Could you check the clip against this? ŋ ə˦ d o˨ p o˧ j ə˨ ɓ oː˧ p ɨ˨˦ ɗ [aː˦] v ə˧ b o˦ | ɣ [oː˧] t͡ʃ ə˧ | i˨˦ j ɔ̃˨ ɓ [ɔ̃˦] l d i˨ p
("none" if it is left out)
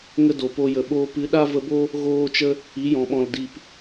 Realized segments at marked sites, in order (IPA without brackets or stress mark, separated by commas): a˦, oː˧, ɔ̃˨